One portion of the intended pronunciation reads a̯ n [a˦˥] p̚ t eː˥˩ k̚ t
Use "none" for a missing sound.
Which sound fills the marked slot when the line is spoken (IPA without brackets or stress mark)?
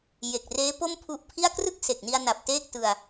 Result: a˨˩